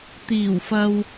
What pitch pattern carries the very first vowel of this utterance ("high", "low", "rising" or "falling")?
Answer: low